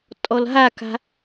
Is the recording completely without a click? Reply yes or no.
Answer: yes